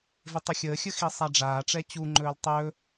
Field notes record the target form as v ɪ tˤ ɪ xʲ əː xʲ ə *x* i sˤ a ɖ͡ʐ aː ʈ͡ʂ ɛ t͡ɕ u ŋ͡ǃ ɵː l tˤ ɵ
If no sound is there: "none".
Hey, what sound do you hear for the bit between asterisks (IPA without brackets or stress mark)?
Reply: x